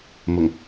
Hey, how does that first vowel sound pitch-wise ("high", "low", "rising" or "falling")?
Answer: low